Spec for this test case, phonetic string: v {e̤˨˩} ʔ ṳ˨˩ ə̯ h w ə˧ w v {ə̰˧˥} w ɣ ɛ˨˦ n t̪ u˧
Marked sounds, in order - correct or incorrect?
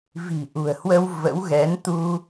incorrect: i̤˨˩, correct

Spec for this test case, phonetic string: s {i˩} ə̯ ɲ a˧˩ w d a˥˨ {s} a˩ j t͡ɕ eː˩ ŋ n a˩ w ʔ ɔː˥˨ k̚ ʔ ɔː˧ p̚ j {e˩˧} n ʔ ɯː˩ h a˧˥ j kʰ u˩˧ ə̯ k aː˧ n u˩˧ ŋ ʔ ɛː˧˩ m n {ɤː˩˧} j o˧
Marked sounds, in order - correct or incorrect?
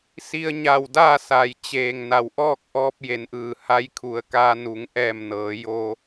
incorrect: i˧, correct, correct, correct

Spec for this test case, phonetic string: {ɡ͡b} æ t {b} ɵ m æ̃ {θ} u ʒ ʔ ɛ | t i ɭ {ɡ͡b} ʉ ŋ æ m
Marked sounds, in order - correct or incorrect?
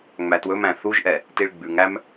incorrect: ŋ͡m, incorrect: w, correct, correct

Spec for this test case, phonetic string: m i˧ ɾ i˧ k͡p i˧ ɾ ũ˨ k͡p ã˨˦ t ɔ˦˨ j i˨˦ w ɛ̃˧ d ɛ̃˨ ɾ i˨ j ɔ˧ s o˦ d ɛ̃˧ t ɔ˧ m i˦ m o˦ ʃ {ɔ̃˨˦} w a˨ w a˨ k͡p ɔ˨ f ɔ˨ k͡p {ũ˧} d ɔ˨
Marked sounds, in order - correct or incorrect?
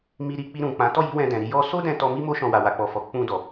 incorrect: ɔ̃˧, correct

